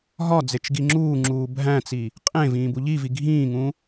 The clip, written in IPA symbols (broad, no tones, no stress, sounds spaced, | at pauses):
ɦ ɒ d͡z e t͡ʃ ɡ i ŋ͡ǁ uː ŋ͡ǁ uː bʱ æ̃ t͡s i | qʼ ẽ v ĩː b u ʎ i v i ɡʱ ĩː ŋ ũ